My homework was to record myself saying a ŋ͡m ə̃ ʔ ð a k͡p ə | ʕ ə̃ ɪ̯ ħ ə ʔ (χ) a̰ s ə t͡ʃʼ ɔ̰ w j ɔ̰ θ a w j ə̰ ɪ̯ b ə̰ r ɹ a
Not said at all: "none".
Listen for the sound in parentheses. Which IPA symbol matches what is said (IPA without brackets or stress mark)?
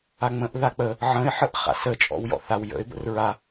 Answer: χ